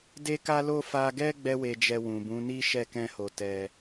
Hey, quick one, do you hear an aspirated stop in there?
no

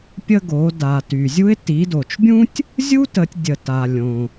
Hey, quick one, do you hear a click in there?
no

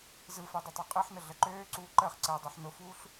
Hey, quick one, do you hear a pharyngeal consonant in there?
yes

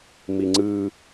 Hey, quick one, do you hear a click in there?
yes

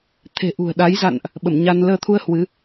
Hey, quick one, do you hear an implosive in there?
yes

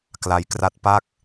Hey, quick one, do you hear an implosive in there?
no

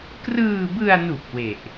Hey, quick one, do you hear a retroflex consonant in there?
no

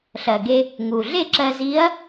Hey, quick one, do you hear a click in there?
yes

